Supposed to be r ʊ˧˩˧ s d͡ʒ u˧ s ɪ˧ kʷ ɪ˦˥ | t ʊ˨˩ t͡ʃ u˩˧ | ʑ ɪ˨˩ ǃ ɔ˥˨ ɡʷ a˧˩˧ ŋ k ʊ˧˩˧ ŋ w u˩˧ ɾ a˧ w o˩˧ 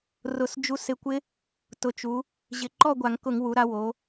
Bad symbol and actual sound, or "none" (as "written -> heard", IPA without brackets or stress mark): none